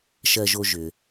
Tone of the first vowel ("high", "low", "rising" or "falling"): high